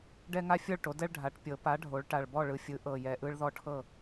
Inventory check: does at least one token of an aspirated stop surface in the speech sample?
yes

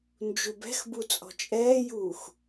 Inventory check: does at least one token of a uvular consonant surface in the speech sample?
no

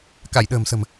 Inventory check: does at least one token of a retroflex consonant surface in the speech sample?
no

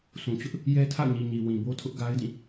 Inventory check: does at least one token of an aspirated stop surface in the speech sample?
yes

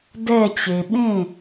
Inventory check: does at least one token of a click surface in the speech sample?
no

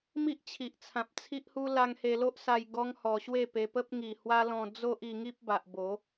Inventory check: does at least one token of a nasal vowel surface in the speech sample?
yes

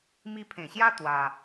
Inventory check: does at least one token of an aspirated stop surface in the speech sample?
yes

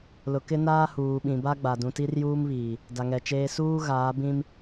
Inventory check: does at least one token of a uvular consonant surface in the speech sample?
no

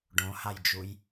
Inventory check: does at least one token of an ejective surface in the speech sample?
no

